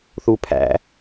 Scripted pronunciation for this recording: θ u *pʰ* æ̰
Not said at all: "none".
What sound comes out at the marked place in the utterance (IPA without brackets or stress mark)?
pʰ